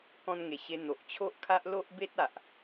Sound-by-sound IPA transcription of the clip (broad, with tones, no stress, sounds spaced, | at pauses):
k ɔ̃˧ n ŋ e˨˩ ɕ e˧ n̪ o˨ ʔ t͡ɕʰ o˦ ʔ kʰ a˦ ʔ l o˦ ʔ b e˦ t̚ a˨ ʔ